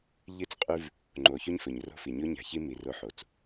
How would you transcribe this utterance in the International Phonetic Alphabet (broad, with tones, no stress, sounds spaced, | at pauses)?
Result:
ʎ ɨ˦ t͡s qʼ ʉ˦ v | ŋ͡ǃ o˨ ç ʉ˦ ɲ f ɵ˨ ɲ r o̤˦ f i˨ ɲ o˦ ɲ a̤˨ ç i˦ m i˨ r o˦ ħ o˨ t͡s